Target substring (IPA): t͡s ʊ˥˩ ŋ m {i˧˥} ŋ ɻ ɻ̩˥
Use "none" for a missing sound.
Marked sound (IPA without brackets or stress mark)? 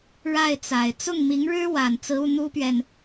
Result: i˧˥